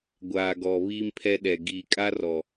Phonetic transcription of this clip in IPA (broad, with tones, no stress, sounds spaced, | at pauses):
ɡʷ aː˨ ɡ ɔ˨ β iː˦ m pʰ ɛ˦ ɗ ɛ˨ ɡ iː˨ kʼ a˦ r ɔ˨